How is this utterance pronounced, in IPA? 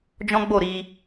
d͡ʒɔ̃˦ɡ͡bo˦˨ɾi˧

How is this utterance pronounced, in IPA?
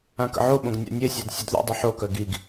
ãkə̰ʕoɓõɡ nʲa̰nʲesʲad sʲœdðṵdˤi ħokœ ɡiɡ

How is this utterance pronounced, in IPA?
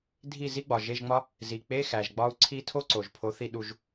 dʱi˥˨ zi˥ɡ͡bɒ˩ʒe˧˥˧ʒŋ͡mɒ˥ | zi˩ k͡pe˧˥˧xæ˩ʒ ɡ͡bɒ˥u̯ ǀʰi˥ tʰo˥ǀo˩ʒ pʰo˨˥ θi˥˨ɗu˥˨ʒ

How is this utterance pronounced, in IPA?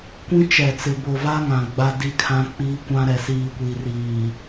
kʷĩ˦ t͡ʃɛ˨t͡sɪ˨ bo˨va˦ŋã˨ ɡ͡ba˦ di˦kʰã˦k͡piː˦kʷã˦ ɾɛ˨siː˨kʷi˨ riː˨

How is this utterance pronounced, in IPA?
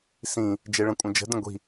sĩ | d͡ʒeɭə̃kʷʼə̃d͡ʒə̤ də̃ɡʷi̤

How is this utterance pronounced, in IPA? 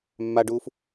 mːaɖuːf

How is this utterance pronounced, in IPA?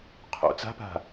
qʰo̰ t͡sa̤pa̤

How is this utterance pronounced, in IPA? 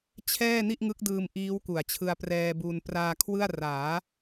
t͡ɕʰɛː˥˩ ni˥˩ʔŋɯ˦˥k̚dɯː˧m ʔiː˦˥wku˨˩a̯t͡ɕʰɯ˧a̯ prɛː˧bu˧n praː˧ kʰwɯ˥˩a̯ raː˩˦

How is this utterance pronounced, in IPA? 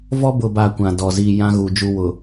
vɔ˦bʊ˨ba˨ kʷã˨dɔ˨ ziː˨ jã˦ ɣu˨d͡ʒu˦wʊ˨

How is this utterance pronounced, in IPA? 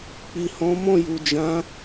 k͡pi˨hɔ̃˨˦mɔ̃˦˨ju˨ d͡ʒã˨˦

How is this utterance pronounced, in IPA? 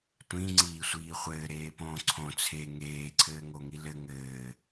tʷĩŋ͡ǀiːsʷiː χʷɘːɾeːpõː ǀʰõ t͡sʰe ŋeːǀʰɘːŋoŋi lɘ ŋɘː

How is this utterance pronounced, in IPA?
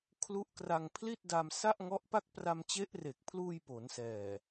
kʰlu˦˥ʔkra˧ŋ pʰli˥˩t̚da˧msa˥˩ʔ ŋɔ˦˥ʔpa˥˩k̚ pra˧mt͡ɕe˦˥ʔre˨˩k̚pʰluː˧j po˩˦nsɛː˨˩

